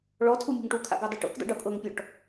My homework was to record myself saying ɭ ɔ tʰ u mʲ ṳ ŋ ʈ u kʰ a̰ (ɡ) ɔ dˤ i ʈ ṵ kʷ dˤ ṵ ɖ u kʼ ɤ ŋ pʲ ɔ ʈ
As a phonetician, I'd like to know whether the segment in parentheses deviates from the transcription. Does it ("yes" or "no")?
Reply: no